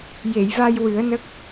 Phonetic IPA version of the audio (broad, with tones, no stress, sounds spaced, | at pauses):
j e˨˩˨ j v a˧ j w ɨ˨˩˦ ə̯ n ə˦˥ k̚